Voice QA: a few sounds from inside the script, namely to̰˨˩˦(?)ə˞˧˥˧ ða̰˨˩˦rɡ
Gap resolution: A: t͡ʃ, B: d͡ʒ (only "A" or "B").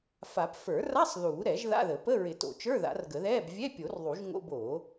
A